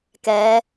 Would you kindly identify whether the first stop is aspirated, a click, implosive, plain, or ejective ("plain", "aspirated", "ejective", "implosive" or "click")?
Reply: plain